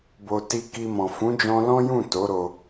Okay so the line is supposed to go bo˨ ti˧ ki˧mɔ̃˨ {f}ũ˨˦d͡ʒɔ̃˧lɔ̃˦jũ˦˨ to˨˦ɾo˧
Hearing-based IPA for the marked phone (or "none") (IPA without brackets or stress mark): f